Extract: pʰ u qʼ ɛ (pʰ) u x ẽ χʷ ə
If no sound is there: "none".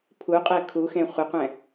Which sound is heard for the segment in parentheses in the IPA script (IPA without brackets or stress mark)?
kʰ